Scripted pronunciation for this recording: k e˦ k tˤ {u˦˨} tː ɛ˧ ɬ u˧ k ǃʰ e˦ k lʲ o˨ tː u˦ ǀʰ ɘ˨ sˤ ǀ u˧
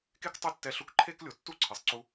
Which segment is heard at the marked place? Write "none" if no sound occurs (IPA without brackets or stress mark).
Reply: u˦˨